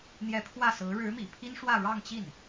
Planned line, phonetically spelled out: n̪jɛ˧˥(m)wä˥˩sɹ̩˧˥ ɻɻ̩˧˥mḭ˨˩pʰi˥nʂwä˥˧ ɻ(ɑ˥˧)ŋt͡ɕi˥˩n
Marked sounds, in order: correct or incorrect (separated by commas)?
incorrect, correct